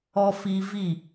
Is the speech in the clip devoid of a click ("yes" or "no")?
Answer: yes